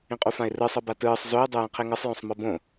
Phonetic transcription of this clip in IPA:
ĩqʼufãɪ̯rɯ sˤɤbatɯːsˤ zoɪ̯ dˤujẽqʰeŋɤsˤ jõsˤmɤbõ

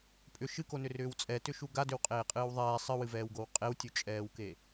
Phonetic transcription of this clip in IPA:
pʼʏ ʃɨkonʏrʏːw t͡sʼɛtʏʃu ɡadʏwqʼeːqʼɨːw ðˤɛː sˤɨwɨvɛːwɡow qʼewtʲut͡ʃʼɛːwke

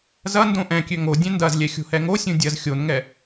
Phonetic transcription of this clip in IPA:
zɐ ndõʔɛ̃kʲø ŋo dʲɛ̃ndɐzlʲɛ xʲo̤hɛŋosʲũ dʲɐz xʲonŋɛ

